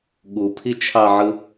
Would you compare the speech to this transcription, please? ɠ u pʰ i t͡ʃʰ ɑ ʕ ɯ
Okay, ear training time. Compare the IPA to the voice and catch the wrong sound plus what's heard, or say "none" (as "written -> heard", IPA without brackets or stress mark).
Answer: none